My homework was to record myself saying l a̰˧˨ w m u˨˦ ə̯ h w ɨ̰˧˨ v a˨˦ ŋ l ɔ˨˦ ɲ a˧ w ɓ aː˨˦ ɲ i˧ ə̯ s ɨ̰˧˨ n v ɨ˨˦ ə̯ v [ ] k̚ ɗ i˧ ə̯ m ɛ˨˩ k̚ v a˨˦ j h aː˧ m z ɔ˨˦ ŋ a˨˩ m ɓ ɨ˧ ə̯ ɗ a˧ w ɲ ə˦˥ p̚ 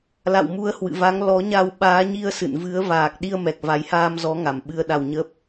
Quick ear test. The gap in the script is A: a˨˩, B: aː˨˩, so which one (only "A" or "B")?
B